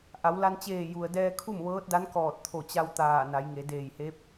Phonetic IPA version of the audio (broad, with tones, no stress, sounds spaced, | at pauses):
ʔ a˩˧ w l a˧ n t͡ɕ eː˧˩ j u˩ ə̯ d ɛː˧ kʰ u˥˨ m ʋ ɤː˧˥ t̚ d a˧˥ n k ɔː˧˩ t̚ t̪ʰ o˧˩ t͡ɕ a˧ w t̪ aː˧˩ n a˩˧ j ŋ e˩˧ d eː˧˩ j h e˧˥ p̚